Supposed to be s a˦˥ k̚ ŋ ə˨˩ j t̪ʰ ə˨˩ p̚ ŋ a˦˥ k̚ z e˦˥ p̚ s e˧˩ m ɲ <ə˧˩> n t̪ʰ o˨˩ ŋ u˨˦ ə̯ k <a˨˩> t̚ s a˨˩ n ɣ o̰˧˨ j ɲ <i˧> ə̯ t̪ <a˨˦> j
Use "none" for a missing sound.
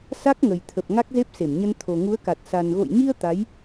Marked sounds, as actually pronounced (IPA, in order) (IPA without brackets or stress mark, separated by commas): ə˧, a˨˩, i˧, a˨˦